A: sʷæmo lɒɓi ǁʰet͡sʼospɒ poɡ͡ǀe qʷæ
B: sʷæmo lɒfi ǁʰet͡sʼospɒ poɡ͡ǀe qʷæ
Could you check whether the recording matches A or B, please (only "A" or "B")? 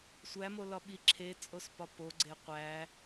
A